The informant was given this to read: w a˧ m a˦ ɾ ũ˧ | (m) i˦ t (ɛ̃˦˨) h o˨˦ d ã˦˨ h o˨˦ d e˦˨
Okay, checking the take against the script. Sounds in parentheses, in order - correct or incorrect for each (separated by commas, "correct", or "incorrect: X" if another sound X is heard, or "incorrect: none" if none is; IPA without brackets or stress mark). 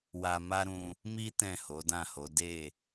correct, correct